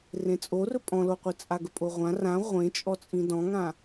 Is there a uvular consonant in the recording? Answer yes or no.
yes